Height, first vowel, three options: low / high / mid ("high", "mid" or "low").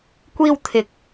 high